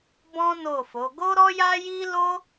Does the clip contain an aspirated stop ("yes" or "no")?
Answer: no